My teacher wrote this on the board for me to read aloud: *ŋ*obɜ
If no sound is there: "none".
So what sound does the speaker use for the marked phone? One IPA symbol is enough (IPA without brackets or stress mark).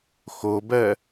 x